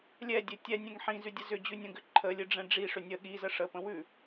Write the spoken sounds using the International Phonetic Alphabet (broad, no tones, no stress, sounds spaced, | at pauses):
lʲ ɛ dʲ ɘ tʲ ɛ nʲ ɛ̃ ŋ ħ ĩ z ʉ dʲ ə z ʏ d͡ʑ ʉ nʲ ə̃ ɡ ʏ ǃʰ ə lʲ ɨ ɖ͡ʐ ɛ̃ ɖ͡ʐ i ʂ ʏ nʲ ə ɠ i z ə ʂ ə p ə̃ w ʉ